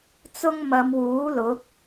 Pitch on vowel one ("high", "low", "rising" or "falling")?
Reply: high